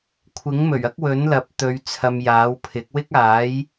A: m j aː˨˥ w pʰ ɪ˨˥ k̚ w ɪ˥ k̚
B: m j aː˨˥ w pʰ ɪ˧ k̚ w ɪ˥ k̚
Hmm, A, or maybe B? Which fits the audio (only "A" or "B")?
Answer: A